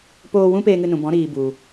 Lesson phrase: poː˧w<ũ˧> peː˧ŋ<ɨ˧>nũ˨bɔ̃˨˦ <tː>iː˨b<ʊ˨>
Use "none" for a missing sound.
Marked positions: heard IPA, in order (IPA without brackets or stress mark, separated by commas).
ũ˦, ɨ˧, ɾ, u˨